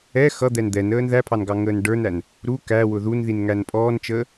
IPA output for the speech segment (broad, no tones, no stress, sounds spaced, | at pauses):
ɛ x ʌ d̪ ɛ n d̪ ɛ n əː n ð æ pʰ ɑ n ɡ ɑ ŋ əː n ɖ ə˞ n æ n | ɾ u k æ w ʊ ð u n ð i n ŋ æ n pʼ ɔː n t͡ʃ əː